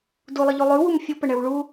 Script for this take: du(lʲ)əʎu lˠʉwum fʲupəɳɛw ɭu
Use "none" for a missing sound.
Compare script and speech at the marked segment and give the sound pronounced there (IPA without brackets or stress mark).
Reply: lˠ